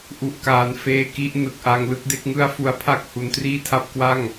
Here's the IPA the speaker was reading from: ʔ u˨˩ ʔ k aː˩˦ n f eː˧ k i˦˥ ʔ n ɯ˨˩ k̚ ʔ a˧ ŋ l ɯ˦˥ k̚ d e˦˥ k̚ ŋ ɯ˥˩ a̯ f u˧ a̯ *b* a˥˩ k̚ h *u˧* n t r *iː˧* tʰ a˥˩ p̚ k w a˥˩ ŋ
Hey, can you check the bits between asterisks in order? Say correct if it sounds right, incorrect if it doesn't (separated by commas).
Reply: incorrect, incorrect, incorrect